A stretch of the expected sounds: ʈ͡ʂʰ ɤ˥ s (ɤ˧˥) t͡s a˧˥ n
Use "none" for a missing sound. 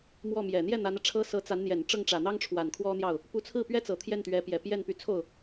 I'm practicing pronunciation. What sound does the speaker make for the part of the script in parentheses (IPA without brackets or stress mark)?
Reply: ɤ˧˥